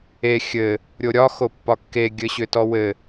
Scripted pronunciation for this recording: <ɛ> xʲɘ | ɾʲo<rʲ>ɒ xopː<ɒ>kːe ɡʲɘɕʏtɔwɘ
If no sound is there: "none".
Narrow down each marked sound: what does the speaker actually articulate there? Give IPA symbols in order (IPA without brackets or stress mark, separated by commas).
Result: e, ɾʲ, ɒ